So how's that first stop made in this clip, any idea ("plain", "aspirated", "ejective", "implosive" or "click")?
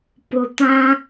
plain